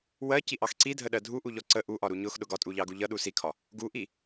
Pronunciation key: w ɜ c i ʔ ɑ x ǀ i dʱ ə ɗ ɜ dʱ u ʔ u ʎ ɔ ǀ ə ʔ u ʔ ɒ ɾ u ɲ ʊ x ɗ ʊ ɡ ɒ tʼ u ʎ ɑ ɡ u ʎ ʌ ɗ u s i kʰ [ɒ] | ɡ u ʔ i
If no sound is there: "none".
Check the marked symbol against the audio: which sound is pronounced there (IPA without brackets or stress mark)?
ɒ